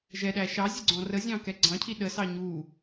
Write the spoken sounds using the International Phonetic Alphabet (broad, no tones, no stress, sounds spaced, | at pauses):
ʒ ɛ ɗ æ ʃ ɑ zʲ ə ɡ͡ǀ ɔ̃ r ə zʲ ɑ̃ k ɛ ɡ͡ǀ ɑ̃ cʰ i ɗ ə s ɑ ɲ u